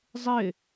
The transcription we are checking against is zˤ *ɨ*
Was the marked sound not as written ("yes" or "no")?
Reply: yes